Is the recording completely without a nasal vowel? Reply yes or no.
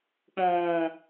no